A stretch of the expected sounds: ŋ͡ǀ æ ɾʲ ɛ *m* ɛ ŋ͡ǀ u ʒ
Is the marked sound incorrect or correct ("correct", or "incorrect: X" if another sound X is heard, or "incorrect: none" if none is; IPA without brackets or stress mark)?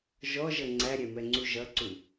correct